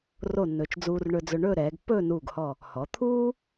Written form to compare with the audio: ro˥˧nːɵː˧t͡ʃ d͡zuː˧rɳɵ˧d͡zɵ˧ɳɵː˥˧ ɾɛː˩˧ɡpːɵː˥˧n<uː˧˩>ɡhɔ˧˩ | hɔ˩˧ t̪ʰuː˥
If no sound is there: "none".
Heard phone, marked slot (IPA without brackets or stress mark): uː˧˩